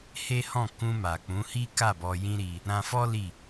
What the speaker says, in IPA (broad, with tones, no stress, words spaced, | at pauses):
he˦ hɔ̃˦˨kũ˧ma˨ k͡pũ˨˦hi˦ka˦˨ bɔ˧jĩ˦ɾi˧ | ɾã˧fɔ˦ li˦˨